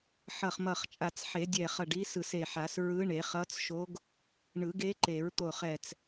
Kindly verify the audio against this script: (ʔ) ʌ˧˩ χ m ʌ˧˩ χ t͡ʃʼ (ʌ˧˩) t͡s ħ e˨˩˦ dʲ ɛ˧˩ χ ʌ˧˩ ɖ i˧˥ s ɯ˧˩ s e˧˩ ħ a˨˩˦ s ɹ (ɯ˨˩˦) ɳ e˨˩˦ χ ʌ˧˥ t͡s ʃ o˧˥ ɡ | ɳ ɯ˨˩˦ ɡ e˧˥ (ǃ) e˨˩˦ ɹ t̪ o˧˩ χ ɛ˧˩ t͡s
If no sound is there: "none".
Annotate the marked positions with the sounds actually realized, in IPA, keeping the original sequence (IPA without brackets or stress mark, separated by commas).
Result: ħ, a˧˩, ɯ˧˥, ǃ